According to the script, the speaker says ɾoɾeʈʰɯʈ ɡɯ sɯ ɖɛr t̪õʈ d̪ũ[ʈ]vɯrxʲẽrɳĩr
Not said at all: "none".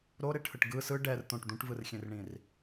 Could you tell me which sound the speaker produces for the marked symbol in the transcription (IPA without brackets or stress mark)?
ʈ